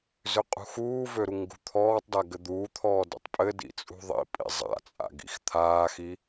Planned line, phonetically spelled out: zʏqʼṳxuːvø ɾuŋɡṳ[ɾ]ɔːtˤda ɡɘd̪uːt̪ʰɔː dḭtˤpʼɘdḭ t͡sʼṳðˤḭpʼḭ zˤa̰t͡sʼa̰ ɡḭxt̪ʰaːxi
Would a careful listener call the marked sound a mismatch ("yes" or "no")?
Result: yes